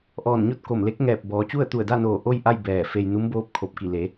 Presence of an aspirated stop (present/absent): present